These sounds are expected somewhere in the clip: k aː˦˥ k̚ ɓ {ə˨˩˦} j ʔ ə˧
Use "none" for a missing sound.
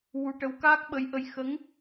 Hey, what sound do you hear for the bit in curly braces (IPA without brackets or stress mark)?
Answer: ə˧˥